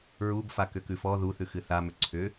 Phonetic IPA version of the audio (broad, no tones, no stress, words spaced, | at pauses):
ɹub fakʏkʉfɔ ðuθʉxɨ θamʏ ǀʰʏ